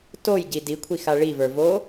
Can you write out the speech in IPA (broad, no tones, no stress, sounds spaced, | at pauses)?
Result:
t o j ɟ i d i kʷʰ i x a ɭ i v ə˞ v oː